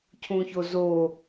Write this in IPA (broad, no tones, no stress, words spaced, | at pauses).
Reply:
cʰũçozo